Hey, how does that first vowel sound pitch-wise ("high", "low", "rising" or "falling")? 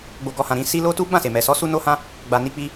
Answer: low